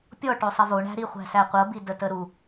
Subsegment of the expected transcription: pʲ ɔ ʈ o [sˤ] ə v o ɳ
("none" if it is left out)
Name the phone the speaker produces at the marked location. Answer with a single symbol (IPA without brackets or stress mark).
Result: sˤ